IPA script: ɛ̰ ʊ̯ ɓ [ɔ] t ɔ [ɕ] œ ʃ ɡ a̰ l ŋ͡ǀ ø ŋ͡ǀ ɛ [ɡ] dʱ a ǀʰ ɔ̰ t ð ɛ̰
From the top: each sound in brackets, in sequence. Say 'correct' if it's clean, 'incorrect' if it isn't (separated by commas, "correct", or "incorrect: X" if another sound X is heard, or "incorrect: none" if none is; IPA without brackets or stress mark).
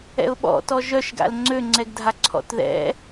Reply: incorrect: ɔ̰, incorrect: ʒ, correct